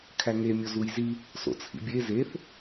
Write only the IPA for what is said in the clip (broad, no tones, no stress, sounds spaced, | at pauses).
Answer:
kʰ æ ŋ e mʲ o z u j z i | s o̰ t͡sʰ ḭ bʲ e z e θ